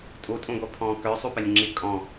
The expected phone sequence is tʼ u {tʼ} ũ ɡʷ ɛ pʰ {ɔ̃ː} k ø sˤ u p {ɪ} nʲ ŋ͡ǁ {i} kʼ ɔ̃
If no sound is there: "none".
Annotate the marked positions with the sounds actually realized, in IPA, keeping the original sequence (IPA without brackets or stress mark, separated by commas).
tʼ, ɔ̃ː, ɪ, i